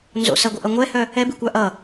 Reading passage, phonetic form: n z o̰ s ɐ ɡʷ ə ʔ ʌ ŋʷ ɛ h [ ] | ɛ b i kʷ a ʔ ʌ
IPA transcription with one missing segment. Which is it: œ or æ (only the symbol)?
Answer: œ